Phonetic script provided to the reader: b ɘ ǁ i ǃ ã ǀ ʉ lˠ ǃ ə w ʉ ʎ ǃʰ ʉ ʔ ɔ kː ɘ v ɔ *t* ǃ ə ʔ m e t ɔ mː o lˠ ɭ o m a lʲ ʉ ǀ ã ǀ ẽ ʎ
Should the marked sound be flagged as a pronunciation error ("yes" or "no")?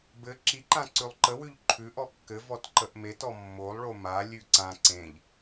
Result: no